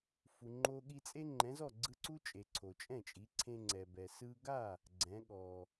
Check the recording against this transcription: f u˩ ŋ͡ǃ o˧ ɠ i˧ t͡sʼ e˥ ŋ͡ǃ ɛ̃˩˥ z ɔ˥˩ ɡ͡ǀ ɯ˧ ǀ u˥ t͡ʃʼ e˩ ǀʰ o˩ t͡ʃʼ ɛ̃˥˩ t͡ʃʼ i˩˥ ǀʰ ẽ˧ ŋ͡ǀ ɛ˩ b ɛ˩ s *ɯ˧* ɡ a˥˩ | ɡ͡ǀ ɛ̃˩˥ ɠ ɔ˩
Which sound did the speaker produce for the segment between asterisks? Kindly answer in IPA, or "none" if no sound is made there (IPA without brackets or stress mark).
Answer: ɯ˧